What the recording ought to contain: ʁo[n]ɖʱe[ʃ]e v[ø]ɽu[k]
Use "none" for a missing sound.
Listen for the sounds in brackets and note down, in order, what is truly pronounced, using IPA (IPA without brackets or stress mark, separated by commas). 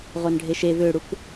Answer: n, ʃ, ø, k